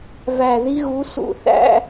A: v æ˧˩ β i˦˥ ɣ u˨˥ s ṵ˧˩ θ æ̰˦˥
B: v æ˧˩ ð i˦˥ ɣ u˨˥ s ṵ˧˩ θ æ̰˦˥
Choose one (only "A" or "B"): B